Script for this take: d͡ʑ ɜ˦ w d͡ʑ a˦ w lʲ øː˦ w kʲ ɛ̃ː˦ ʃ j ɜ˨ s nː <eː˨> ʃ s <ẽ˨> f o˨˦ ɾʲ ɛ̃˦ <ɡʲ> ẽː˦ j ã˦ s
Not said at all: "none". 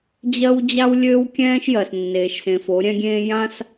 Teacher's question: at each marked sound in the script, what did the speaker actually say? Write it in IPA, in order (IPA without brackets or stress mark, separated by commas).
eː˨, ẽ˨, ɡʲ